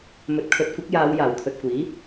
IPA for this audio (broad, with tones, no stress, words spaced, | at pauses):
mɵ˨˥t̚kʰɵ˨˥t̚kʷɪ˨˥k̚ jaː˨˧w jaː˨˩wt̪ʰɵ˨t̚kʷiː˨˥